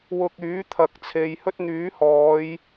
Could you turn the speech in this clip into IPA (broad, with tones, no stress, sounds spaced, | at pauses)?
w ʊ˧ k̚ yː˨˥ t̪ʰ ɐ˨˥ k̚ t͡sʰ e˨˧ j h ɵ˥ t̚ n̪ yː˨˥ h ɔː˨˧ j